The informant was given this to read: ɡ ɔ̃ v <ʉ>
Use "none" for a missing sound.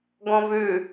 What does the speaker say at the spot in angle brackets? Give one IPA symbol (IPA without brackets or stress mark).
ʉ